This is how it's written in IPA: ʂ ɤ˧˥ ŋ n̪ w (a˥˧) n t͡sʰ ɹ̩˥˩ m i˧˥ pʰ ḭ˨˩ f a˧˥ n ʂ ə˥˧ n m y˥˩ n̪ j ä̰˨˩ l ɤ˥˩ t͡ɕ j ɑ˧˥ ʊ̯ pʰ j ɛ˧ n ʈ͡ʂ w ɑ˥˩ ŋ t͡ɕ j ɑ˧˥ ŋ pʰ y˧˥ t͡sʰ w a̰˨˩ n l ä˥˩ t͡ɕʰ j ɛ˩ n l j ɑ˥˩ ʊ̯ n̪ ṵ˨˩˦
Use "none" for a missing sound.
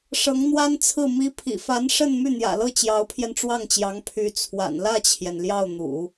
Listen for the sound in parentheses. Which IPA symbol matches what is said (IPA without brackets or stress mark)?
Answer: a˥